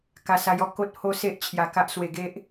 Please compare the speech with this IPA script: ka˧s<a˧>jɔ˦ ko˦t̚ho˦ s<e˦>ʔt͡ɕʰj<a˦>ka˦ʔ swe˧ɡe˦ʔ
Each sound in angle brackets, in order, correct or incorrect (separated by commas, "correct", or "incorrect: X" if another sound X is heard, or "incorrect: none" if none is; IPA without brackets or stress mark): correct, correct, incorrect: a˧